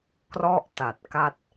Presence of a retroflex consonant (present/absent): absent